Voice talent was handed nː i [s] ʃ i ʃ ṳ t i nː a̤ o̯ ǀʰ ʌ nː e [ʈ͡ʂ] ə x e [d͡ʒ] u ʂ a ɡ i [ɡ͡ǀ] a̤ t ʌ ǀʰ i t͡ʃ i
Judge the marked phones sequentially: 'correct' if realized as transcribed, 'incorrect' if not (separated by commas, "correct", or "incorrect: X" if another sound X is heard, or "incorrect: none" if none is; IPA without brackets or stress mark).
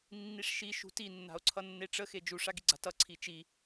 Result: incorrect: ʂ, correct, correct, correct